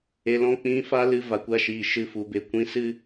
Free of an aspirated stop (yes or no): yes